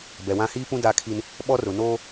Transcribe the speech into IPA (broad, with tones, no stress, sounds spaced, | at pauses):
b ɛ˨ w ã˦ h iː˦ p ũ˦ d a˦ kʰ i˦ n | ɓ ɔ˦ r ʊ˨ n oː˦